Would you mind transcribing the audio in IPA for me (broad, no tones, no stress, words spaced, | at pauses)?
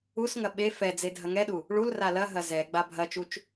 usŋɐ ɓe fɛd͡ze dʱɐŋɛɗu | ɭul ralɐɦɐ zɛ ɡ͡babʱɐt͡ʃut͡ʃ